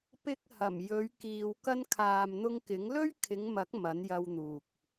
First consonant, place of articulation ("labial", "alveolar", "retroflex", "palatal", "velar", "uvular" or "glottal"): labial